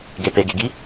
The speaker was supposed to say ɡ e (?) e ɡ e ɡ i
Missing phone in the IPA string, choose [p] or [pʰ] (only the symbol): p